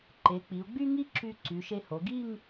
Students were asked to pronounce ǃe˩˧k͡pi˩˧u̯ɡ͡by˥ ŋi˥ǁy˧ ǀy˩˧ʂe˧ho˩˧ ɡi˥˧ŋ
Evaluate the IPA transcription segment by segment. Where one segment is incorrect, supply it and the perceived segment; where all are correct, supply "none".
ʂ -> ʃ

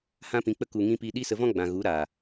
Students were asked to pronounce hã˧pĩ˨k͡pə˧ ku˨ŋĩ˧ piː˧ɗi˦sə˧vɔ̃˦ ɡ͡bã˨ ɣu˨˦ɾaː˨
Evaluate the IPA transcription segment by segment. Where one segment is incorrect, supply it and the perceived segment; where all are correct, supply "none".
none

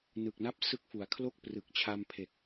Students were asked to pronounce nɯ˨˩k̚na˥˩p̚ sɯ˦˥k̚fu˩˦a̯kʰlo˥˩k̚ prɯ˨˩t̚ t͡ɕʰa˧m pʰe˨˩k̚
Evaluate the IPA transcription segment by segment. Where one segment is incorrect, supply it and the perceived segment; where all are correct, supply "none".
t̚ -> k̚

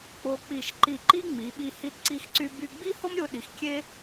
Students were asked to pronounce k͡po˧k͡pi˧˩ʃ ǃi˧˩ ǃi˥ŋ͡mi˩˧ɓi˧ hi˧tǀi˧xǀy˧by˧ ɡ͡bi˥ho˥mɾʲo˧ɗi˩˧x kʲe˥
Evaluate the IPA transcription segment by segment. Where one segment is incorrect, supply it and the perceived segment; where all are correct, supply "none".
none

